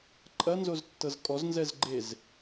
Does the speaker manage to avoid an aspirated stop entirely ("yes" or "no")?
yes